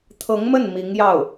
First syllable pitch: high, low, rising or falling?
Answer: rising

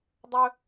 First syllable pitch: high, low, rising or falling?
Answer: high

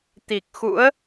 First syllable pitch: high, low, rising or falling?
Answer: low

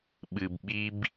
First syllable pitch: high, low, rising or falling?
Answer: low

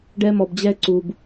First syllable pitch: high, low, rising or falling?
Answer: high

